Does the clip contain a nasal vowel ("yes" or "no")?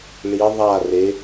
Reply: no